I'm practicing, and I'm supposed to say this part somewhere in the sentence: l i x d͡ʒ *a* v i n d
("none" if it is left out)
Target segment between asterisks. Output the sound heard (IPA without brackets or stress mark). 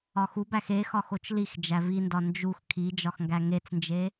æ